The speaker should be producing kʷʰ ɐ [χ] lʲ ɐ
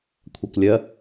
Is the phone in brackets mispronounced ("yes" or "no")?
yes